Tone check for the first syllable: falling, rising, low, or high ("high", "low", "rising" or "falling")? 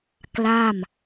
falling